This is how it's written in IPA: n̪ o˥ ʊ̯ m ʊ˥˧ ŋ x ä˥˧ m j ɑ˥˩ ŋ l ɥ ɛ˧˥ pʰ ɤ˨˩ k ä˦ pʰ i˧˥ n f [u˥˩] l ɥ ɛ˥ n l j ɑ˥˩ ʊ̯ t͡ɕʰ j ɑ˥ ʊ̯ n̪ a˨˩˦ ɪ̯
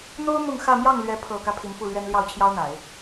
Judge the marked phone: correct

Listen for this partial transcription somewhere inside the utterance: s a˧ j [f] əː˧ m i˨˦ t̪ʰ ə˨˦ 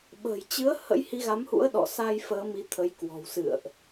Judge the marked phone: correct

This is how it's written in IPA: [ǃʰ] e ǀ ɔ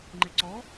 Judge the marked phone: incorrect: ŋ͡ǃ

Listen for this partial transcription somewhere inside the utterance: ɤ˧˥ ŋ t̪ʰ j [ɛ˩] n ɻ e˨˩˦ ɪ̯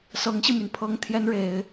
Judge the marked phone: incorrect: ɛ˧˥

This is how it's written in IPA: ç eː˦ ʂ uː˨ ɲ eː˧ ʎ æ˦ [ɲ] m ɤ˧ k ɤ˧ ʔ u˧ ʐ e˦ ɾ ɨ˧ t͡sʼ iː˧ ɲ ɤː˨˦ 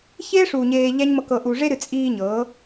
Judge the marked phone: correct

